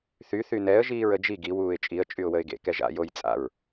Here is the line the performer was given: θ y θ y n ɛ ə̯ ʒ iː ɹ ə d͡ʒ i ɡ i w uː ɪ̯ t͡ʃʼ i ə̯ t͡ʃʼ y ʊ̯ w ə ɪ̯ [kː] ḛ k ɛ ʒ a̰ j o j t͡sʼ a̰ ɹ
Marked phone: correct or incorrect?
incorrect